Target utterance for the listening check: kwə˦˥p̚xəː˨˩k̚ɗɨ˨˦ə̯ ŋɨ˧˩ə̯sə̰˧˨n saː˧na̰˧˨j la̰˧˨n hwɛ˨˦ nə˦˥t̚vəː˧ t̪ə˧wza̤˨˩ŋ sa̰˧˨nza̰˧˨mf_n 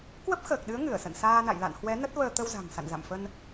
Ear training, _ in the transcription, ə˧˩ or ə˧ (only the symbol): ə˧